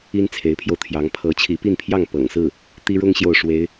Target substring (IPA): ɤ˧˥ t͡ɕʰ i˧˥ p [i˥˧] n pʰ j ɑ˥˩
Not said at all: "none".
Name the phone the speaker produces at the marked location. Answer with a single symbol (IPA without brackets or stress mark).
i˥˧